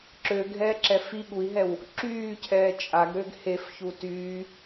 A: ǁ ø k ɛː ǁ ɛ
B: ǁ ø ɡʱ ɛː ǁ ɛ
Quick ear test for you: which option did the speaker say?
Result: B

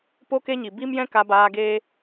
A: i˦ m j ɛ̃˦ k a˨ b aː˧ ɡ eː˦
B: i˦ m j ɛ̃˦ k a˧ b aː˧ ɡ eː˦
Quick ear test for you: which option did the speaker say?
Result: B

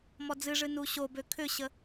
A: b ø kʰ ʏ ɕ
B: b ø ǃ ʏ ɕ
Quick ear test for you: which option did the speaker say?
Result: A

